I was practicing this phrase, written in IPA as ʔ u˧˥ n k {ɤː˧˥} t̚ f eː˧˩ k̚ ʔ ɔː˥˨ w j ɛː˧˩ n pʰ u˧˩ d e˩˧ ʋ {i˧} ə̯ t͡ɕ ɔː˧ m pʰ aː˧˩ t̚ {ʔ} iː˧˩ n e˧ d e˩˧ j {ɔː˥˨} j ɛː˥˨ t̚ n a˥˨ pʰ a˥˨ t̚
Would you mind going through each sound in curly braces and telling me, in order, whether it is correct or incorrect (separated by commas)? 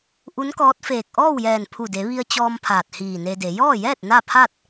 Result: incorrect, correct, incorrect, correct